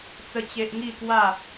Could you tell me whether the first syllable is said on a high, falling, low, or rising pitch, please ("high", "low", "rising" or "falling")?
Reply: high